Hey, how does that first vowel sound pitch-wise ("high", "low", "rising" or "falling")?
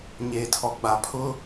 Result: low